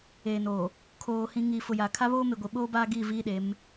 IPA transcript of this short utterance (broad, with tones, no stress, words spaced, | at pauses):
eː˨no˨ | kʰoː˨ hĩ˨ ŋiː˨fʊ˨ja˨ kʰa˦βoː˦me˨ɡʷi˨ ɓoː˦baː˦ ɡi˦˨ viː˦ɗe˨˦m